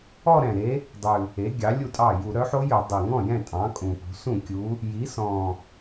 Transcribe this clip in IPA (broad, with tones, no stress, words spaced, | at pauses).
ɔ˥˧ɾɛ̃˨˩ɾe˧˥ | dˤʉ˨˩ | e˩˥ ɡʲɑ˩˥lʲu˥˩tʼɑ˥˩ ju˧˩˧ɾœ˩˥ħo˧˥jɵ˧˩˧ dˤe˨˩ŋɔ̃˥˩jɛ̃˥˩ tʼɑ̃˩˥kʼũ˨˩pṳ˩˥ sũ˥˩kʲu˧˥ | ji˩˥sɔ̃˨˩